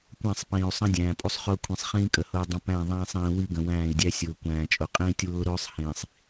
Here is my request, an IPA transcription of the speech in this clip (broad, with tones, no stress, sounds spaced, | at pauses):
kʷ æ̃˦˨ sˤ p ĩː˨ u̯ sˤ ə̃˦ dʲ æ̃ː˨ pʼ u˦ sˤ χ ʊː˦ kʷʰ ĩ˨ sˤ χ ĩː˦ kʼ ə˨ h ʊː˦ dˤ ə̃˦ p æ̃˦˨ ðˤ æ̃ː˦ sˤ ĩː˨ w i˦ ɡ ə̃˨ w æ̃ː˦˨ i̯ dʲ æ˦ sʲ ʊː˨ kʷ æ̃ː˨ t͡ʃʼ ʊ˨ qʼ ĩː˦ tʲ w ʊː˦ ɾ ʊː˦ sˤ h ĩː˨ sˤ